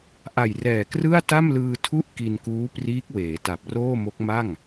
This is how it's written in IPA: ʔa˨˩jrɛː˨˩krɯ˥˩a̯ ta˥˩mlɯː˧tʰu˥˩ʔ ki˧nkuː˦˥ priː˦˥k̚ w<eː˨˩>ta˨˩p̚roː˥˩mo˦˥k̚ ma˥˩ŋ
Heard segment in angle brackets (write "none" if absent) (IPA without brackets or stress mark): eː˩˦